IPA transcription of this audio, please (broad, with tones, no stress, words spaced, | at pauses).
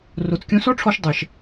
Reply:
ro˨t͡skʲõ˧sɔ˦ʈ͡ʂʰɔ˧ʃ dˤɛ˨ʃ